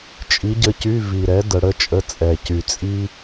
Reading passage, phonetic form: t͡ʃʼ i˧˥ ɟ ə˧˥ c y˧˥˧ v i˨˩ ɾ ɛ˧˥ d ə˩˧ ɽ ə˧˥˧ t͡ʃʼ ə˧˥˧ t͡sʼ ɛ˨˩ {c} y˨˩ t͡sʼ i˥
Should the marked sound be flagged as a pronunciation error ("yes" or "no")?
no